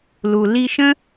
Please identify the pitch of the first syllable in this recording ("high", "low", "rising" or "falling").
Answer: low